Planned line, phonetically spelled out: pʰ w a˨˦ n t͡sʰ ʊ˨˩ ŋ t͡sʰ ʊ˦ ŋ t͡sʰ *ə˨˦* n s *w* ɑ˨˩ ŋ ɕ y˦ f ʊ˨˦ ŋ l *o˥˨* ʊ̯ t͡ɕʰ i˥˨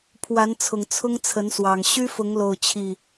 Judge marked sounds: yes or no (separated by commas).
yes, yes, yes